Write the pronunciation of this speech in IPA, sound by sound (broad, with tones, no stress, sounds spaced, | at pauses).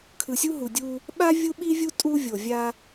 kʰ ɯ˨ sʲ u˦ ɦ u˨ dʲ u˦ | ɓ a˦ vʲ u˦ ɓ i˦ vʲ u˦ tʼ u˦ vʲ o˨ vʲ a˦